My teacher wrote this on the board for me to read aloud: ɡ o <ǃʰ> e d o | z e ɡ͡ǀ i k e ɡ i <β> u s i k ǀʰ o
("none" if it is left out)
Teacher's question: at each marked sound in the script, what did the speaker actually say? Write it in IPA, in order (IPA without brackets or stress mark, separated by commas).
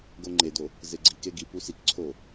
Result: ŋ͡ǃ, p